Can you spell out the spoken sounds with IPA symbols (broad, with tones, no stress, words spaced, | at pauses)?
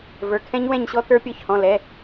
və˞˩˧˩kʰɛ̃˦˥ɲ wɛ̃˥˨ɲɕɔ˦˥ tə˞˦˥pʲɔ˦˥çhɔ̃˩˧˩ lɛ˩˧˩